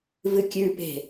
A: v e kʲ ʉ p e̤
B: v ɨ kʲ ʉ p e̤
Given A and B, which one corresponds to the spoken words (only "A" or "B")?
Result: B